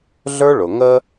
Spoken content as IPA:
ɮ ə˞˦ ɭ ʊ˨ ŋ ə˧

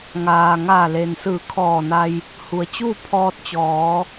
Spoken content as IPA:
ŋ aː˩ ŋ aː˧˩ l e˩ n s ɯː˧˩ kʰ ɔː˧˩ n a˧ j | h u˩ ə̯ t͡ɕ uː˥˨ pʰ ɔː˧ t̚ t͡ɕ ɔː˩˧

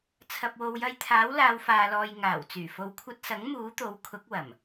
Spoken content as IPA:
t͡sʰ ɐ˨ p̚ w o˨ w j ɐ˧ j t̪ʰ aː˨˥ w l aː˨˧ w f aː˨ l ɔː˨ j ŋ aː˨˩ w t͡s yː˨˩ f o˨˧ w kʷʰ ɐ˧ t̚ s ɐ˨˥ ŋ m uː˨˥ t̪ o˨˥ w kʰ ʊ˨˥ k̚ w ɐ˨˩ m

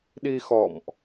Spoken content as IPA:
ɗ i˧ x ɔ̰˧˨ m ʔ

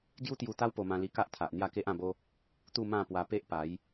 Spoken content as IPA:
ɡ j u˦ t̪ j u˧ t̪ a˦ w p o˧ m ã˧ l i˧ k a˦ ʔ t̪ʰ a˨ ʔ n̪ j a˥˧ k e˦ ʔ ã˥˧ b o˦ | t̪ u˥˧ m ã˥˧ p w a˧ p e˦ ʔ p a˨˦ j

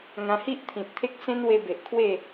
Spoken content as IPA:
ŋ ã˧ h i˦ ʔ t̪ʰ ĩ˨ t̚ t̪ʰ e˦ k̚ s ẽ˦ n w e˧ b e˨ ʔ kʰ w e˥˧

